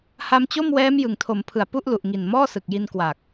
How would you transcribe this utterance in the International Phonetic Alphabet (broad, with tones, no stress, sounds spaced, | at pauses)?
h a˧ m t͡ɕ o˥˩ m w ɛː˦˥ m j ɯ˨˩ ŋ tʰ o˩˦ m pʰ ɯ˨˩ a̯ p u˥˩ ʔ l u˨˩ ʔ ŋ i˨˩ n m ɔː˥˩ s ɯ˨˩ k̚ j i˧ n k w a˨˩ k̚